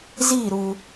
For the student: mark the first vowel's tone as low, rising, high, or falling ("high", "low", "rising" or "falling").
falling